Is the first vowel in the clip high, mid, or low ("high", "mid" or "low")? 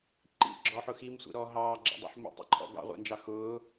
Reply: high